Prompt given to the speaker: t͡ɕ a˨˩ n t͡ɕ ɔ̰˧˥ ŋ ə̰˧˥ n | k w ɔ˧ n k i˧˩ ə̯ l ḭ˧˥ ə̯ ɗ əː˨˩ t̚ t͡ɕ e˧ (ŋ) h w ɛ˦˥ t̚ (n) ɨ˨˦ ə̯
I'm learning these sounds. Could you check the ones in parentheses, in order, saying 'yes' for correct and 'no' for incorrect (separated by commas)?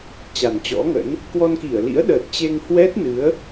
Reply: yes, yes